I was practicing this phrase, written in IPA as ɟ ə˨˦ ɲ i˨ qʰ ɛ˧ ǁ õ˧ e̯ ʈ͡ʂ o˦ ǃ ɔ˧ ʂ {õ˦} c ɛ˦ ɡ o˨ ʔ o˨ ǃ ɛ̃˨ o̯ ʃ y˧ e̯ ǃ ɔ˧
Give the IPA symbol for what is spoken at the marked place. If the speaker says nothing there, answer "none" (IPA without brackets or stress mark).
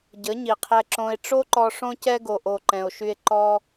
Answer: õ˦